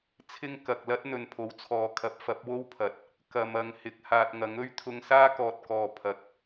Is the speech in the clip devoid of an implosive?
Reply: yes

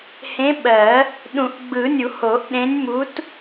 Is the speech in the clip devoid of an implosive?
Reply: no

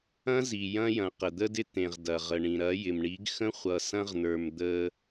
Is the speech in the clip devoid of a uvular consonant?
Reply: no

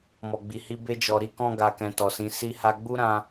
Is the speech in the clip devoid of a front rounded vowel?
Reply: yes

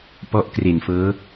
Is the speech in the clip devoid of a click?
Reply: yes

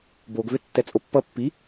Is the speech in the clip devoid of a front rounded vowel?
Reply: no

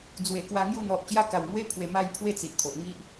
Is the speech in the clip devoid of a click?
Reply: yes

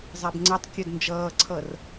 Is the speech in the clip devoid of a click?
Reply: no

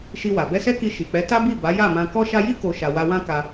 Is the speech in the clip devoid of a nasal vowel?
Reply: no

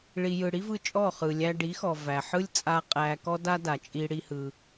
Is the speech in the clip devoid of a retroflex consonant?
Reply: no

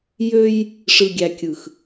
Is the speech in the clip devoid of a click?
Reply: yes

